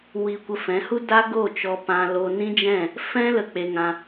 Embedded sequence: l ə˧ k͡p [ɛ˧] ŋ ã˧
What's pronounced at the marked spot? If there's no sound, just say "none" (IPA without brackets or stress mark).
e˧